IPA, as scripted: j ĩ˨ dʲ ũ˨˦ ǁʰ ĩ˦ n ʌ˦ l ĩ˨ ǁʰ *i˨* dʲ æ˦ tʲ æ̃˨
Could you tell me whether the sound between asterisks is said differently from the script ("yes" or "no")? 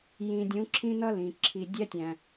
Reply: no